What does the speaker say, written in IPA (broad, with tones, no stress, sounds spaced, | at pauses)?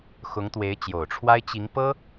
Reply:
x ʊ˧˥ ŋ t̪ w e˧˥ ɪ̯ t͡ɕ j o˨˩ ʊ̯ ʈ͡ʂʰ w a˥ ɪ̯ t͡ɕ i˧˥ ŋ p ɤ˥